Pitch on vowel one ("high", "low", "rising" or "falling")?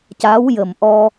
rising